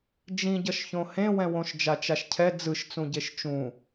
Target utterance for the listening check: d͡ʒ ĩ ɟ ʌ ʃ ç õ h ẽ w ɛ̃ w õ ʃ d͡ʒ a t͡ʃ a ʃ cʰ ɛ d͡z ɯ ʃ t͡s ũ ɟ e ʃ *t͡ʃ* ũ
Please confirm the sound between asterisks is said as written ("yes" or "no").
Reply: yes